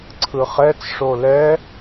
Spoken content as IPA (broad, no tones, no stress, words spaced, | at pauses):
ǀʰɯχɛt͡sʂo lɛ